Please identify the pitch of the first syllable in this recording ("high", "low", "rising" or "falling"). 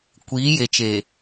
rising